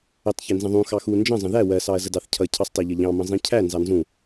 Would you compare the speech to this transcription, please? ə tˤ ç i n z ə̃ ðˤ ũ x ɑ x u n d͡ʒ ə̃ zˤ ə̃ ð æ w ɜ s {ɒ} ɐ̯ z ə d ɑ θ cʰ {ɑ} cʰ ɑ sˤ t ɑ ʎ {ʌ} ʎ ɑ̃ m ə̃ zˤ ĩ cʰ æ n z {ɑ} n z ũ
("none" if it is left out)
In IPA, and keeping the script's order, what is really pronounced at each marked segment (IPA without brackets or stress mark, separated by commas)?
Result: ɑ, ʌ, ʌ, ɑ